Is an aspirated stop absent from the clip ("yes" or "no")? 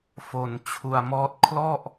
no